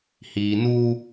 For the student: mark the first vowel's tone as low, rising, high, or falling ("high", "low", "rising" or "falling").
low